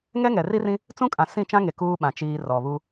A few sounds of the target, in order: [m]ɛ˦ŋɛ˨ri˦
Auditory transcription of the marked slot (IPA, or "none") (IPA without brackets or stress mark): ŋ